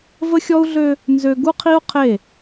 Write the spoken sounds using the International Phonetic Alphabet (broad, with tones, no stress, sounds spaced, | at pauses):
v ə˦ xʲ ɔ˦ u̯ ɮ ø˦ | n z ø˦ ɡ u˦ qʰ i˦ u̯ qʰ e˦˨